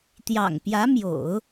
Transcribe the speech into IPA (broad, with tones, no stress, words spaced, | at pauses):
t̪jɑ̰˨˩ŋpjä˧˥mjo̰˨˩˦ʊ̯